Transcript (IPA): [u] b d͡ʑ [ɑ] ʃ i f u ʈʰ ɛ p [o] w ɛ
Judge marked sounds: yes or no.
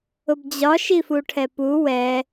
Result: no, no, no

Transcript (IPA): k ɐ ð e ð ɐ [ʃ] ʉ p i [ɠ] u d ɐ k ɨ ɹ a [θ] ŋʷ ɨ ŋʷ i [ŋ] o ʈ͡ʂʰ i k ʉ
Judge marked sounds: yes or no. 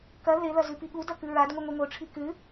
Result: no, yes, no, yes

